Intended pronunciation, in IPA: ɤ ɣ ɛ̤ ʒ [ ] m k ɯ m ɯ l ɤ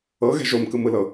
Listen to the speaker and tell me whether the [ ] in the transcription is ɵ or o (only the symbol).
o